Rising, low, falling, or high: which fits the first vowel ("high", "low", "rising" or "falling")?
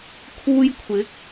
high